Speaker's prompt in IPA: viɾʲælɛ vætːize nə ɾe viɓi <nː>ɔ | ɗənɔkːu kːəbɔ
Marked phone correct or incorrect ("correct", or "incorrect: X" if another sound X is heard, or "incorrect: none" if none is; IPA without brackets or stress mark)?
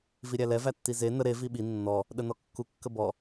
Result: correct